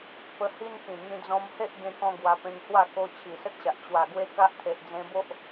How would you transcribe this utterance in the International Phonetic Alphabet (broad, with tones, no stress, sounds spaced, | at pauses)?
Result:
p ə˧ h i˦ n k ĩ˨˩ ŋ ĩ˧ d͡z ɔ̃˧ m h e˦ ʔ ɡ ẽ˦ k ɔ̃˦ ɡ w a˧ p ẽ˧ ŋ h w a˥˧ k o˧ t͡ɕʰ i˨˩ s ə˦ t̚ ɕ a˨ ʔ t͡ɕ w a˨˩ ɡ w e˦ k a˦ ʔ t̪ʰ e˨ ʔ d͡z ẽ˧ b o˦ ʔ